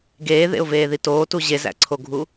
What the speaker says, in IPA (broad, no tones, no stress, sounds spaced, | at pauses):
ɡ eː ð ḛ ʊ̯ v eː ð i t oː t u ʑ e z æ̰ ǀʰ o ɡʱ u